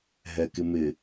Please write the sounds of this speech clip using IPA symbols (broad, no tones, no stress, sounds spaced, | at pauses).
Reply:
ɦ ɛ k ɪ m ɪ